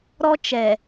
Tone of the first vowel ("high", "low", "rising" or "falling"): high